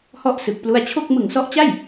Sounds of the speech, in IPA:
h ɔ˦˥ ʔ s ɯ˨˩ k̚ p l u˧ a̯ t͡ɕʰ o˥˩ k̚ m ɯ˨˩ ŋ s ɔ˦˥ ʔ t͡ɕ a˥˩ j

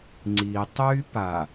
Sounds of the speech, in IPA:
ŋ͡ǀ i tˤ y p a

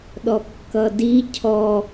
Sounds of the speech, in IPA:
ɗ ɔ kː ʌ d i cʰ ɔ

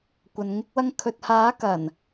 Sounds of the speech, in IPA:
kʷ ɐ˨ n ŋ ɪ˧ k̚ w ɐ˧ ŋ kʰ ɵ˧ t̚ h aː˨˥ k ɐ˨˩ n

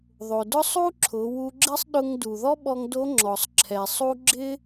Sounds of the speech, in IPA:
ðˤ o˩ d ʊ˥ sˤ u˥ ǁʰ ʊ˩˧ w u˧ ɡ͡ǁ ɪ˥ sˤ ɗ ʊ˧ ŋ d u˩ ð ɔ˥ ɓ ɔ˧ ŋ d o˧˥ ŋ͡ǁ ɔ˩ sˤ ǁʰ ɛ˩ sˤ u˥ ɡ͡ǁ ɪ˥

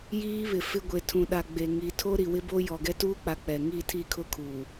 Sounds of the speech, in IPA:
j iː˦ β ɪ˨ f ɪ˦ ɡʷ e˨ tʰ ũ˨ ɗ a˨ ɡ͡b e˨ ŋ i˨ tʰ o˦ ɾ i˨ w ɪ˦ b o˦ j ɔ˨ ɡ ɛ˦ t uː˦ k͡p a˨ k͡p ɛ˨ ŋ i˦˨ tʰ i˦˨ kʰ ʊ˦ kʰ uː˨

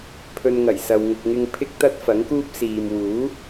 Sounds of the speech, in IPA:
pʰ ɵ˧ n ŋ ɐ˨˩ j s ɐ˨ w ŋ ʊ˨ k̚ ŋ ɪ˧ ŋ pʰ ɪ˥ k̚ t̪ ɐ˥ t̚ f ɐ˨˥ ŋ k uː˥ p̚ s iː˨ m w uː˨˥

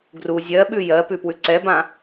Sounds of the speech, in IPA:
ɡ r u zʲ ɜ ɓ ʉ j ɜ p ʉ p w ʉ ǀ ɛ b ã

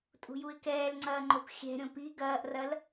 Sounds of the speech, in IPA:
tʼ ṳ j u ɪ̯ k ɛː l ŋ͡ǀ ɐː ŋ͡ǃ o p xʲ ɛ̤ ɾʲ õ p i ɡ ɐː ʔ r ɐ l

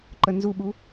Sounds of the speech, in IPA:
ǃ ə n z u ɓ u

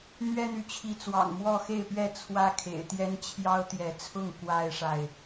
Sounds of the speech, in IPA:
n̪ ɥ ɛ˦ n̪ y˨ t͡ɕʰ i˨˦ t͡s w ɑ̰˨˩ ŋ m w ɔ˥˨ x e˥˨ ɪ̯ p ɥ ɛ˥˨ t͡sʰ w ä˦ kʰ ḛ˨˩ ɪ̯ t̪ j ɛ˦ n t͡ɕʰ j ɑ˦ ʊ̯ t̪ j ɛ˨˦ t͡sʰ ʊ˥˨ ŋ k w a˦ ɪ̯ ʂ a˨ ɪ̯

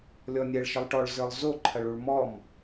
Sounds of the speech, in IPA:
lʲ ɔ nʲ ɛ ɭ ʃ ə lˠ ʈ ɔ ɭ z ə˞ lˠ z o ǃʰ ɐ ɭ u ɭ m ɔ m

